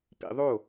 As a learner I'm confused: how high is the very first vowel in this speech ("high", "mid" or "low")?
high